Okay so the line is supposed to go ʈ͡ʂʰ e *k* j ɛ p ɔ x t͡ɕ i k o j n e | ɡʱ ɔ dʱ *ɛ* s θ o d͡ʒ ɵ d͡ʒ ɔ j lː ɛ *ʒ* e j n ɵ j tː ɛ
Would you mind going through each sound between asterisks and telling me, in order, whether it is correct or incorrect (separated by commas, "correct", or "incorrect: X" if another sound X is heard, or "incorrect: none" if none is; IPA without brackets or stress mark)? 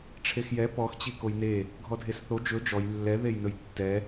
incorrect: x, incorrect: e, incorrect: ð